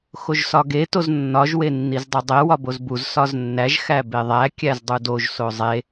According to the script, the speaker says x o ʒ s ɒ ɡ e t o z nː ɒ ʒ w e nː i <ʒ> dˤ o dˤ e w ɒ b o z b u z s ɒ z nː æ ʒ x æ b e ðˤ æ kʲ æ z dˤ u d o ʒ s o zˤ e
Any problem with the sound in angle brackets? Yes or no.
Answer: yes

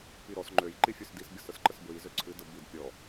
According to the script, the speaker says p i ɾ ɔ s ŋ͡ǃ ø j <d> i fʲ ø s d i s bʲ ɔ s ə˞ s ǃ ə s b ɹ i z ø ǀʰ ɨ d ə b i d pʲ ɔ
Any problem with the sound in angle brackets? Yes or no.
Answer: yes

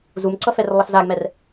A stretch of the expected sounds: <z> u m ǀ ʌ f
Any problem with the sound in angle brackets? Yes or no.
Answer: no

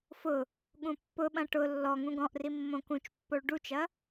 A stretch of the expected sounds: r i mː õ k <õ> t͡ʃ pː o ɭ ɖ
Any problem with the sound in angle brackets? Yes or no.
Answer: yes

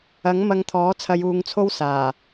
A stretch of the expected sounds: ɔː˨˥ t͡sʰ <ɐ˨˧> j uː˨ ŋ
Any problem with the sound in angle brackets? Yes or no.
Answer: no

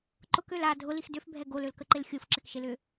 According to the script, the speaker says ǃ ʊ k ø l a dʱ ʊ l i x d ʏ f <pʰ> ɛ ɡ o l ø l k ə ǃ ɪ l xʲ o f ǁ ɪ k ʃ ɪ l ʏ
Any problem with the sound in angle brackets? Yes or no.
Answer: yes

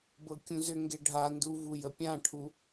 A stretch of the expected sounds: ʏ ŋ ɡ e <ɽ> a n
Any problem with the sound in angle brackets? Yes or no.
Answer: yes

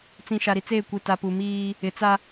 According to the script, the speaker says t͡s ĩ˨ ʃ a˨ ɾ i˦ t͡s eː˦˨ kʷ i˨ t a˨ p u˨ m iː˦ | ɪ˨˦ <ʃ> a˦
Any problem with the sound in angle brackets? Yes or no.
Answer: yes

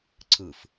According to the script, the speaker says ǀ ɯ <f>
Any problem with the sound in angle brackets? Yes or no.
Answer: no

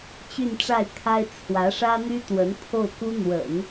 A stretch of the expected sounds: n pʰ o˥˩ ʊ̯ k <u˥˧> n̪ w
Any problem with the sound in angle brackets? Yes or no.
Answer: yes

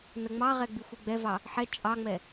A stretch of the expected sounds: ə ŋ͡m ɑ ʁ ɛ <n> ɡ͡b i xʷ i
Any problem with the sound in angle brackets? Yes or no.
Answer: yes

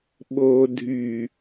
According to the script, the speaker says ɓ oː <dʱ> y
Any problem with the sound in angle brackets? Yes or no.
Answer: no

